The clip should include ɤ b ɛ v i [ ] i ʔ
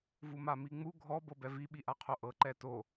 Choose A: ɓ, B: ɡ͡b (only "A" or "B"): A